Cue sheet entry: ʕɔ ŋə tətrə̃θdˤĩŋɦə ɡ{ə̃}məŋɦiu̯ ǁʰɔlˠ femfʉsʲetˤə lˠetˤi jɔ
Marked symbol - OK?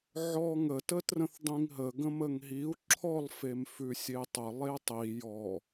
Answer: yes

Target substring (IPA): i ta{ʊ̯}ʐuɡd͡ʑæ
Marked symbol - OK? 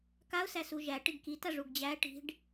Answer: no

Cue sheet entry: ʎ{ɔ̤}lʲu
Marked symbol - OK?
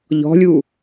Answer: yes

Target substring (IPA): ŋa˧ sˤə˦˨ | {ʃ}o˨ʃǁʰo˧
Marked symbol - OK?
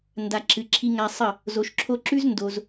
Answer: no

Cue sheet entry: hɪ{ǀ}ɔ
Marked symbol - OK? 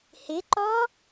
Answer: no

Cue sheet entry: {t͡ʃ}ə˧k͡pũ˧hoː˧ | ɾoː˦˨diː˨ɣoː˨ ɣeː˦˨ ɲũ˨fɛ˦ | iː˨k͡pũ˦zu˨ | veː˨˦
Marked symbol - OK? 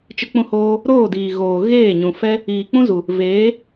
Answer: yes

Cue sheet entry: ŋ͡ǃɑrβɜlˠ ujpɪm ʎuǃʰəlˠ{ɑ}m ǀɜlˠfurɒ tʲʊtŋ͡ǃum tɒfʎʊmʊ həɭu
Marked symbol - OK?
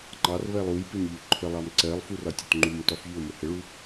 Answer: yes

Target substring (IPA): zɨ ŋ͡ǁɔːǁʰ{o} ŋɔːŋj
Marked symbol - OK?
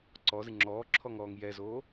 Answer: no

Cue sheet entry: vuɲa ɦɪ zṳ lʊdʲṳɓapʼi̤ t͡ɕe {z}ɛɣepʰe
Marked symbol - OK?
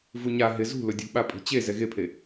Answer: yes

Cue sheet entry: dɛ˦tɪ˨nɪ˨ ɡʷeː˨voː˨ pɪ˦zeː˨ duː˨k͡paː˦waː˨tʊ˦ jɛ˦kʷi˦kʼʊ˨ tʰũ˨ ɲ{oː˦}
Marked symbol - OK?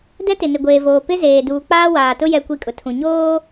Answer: yes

